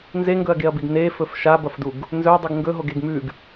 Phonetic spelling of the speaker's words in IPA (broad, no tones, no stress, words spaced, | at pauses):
nzeŋɡɵɐ̯ɡeɐ̯biɡ nefɵf ʃabɐfduɡ | nzɵdˤɨɡ ŋɡɵɦoɡeɡ mʉɡ